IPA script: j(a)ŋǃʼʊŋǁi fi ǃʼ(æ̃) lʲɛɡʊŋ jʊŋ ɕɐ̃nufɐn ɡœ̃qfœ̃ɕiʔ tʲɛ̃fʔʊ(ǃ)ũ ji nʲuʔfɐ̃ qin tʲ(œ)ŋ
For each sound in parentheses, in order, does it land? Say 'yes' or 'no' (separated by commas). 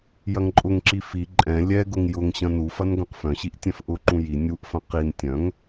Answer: no, no, yes, no